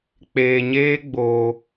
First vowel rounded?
no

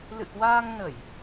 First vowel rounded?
no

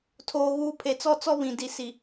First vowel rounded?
yes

